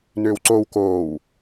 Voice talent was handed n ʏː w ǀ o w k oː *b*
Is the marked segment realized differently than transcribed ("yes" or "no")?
yes